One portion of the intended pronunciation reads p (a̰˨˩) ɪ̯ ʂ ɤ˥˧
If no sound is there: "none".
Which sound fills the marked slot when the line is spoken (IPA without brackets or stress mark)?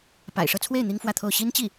a̰˨˩